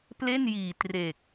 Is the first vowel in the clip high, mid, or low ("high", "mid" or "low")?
mid